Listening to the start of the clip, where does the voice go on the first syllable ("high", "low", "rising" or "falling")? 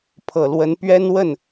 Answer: low